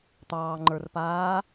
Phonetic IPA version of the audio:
t̪ ɑː ŋ͡ǃ ə˞ r p aː

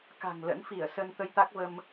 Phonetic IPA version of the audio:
k a̤˨˩ ŋ l ə̰˧˥ n f i˧˩ ə̯ s ə˧ n t̪ ə˧ j t̪ a˦˥ k̚ v ə˧ m

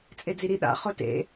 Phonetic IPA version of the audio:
t͡sʼ e d͡z i ɾ i ɗ a̰ χ ʊ t ḛ

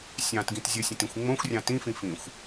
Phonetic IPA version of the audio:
sʲ ɑ̃ t ɡ ĩ t zʲ ə sʲ ə̃ t ĩ xʷ ŋ͡m õ xʷ rʲ ɑ̃ t ĩ f ĩ f ĩ xʷ

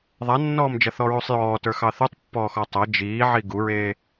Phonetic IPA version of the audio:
ðˤ a nː ɔː m d͡ʒ ɐ θ ɔ ɹ u sˤ j ɔː t ə˞ x ɑ θ u tˤ pː ɔː x ɔ tˤ ɐ d͡ʒ iː ʕ i ɡ u ɹ eː

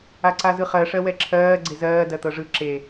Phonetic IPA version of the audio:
a ǀ a z ɯ χ ɜ ʂ ɜ w ɛ ǁʰ ɜː ɡ͡ǀ e z ɜː d ɜ t̪ ɤ ʐ ɯ ǁ e

